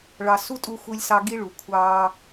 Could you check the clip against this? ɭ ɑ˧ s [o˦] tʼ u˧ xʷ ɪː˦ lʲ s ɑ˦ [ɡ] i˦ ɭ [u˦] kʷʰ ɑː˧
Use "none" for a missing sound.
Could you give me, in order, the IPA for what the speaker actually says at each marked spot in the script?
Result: u˦, ɡ, u˨

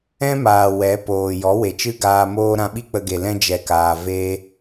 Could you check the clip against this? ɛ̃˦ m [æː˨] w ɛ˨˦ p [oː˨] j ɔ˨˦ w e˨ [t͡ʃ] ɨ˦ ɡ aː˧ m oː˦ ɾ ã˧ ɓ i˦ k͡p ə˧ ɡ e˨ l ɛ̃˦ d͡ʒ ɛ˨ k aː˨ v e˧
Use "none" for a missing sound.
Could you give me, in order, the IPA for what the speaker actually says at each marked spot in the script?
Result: aː˨, oː˨, t͡ʃ

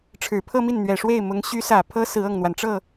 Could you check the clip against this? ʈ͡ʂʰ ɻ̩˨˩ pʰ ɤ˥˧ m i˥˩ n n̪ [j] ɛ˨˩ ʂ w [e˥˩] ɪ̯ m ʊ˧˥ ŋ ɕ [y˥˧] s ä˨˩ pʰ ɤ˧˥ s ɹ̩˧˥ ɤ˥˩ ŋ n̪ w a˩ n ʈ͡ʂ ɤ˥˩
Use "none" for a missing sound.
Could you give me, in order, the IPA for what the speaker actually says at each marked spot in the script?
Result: ɥ, e˥˩, y˧˥

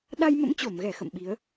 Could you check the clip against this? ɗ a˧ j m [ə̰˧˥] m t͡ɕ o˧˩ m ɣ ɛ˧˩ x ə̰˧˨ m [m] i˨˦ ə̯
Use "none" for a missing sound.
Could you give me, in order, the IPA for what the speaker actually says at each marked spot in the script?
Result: ə̰˧˥, ɓ

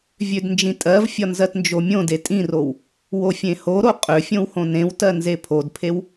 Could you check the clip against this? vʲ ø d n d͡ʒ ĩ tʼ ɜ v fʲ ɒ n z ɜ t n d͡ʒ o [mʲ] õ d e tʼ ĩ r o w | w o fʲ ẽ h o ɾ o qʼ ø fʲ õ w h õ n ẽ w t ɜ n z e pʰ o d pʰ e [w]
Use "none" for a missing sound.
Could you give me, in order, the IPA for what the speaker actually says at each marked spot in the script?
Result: mʲ, w

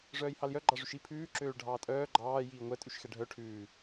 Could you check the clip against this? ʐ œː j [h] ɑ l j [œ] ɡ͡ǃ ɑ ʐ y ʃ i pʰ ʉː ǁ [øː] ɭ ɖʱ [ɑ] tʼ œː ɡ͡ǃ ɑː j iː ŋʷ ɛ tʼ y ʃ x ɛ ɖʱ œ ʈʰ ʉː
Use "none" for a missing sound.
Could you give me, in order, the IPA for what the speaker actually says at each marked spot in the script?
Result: h, œ, øː, ɑː

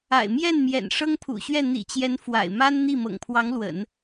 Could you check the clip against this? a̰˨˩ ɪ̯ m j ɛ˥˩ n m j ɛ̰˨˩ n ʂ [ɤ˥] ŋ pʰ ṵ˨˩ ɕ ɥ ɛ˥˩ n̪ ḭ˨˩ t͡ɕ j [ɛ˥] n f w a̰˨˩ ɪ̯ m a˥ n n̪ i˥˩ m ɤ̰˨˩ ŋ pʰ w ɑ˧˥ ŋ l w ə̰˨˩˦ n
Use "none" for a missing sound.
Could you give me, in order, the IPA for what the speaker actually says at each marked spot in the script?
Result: ɤ˥, ɛ˧˥

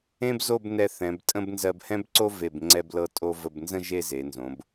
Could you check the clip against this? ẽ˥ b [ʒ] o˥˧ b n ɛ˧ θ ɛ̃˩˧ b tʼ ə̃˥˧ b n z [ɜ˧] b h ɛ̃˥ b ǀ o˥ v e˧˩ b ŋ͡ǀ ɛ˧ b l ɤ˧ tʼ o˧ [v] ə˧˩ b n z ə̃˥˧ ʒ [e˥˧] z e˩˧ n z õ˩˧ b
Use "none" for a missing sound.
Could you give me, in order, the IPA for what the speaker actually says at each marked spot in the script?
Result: z, ɜ˧, v, e˥˧

